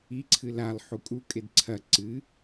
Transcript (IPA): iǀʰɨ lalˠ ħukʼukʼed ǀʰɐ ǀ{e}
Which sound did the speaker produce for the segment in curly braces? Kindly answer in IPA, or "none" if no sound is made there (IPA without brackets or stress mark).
ɨ